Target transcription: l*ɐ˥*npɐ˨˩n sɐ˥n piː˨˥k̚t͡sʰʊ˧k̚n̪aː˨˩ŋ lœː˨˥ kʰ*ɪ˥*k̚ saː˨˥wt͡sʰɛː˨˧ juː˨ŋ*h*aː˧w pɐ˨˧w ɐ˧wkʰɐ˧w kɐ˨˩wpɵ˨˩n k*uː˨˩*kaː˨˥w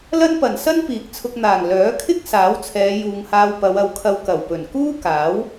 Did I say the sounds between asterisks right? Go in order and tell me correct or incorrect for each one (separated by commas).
correct, correct, correct, incorrect